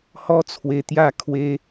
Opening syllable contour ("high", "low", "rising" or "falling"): high